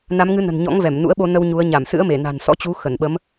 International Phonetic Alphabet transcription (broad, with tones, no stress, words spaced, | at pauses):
na˨˦mŋɨ˨˦nə̤˨˩n ɲɔ̰˧˥ŋvɛ˧˩m nṵ˧˥ə̯ɓo˧nə˧w ɲu˨˦ə̯ ɲa˧˩msɨ̰˧˥ə̯me˧˩ na̤˨˩nsɔ̰˧˥t͡ɕu˨˦ xə˧˩nɓə˨˦m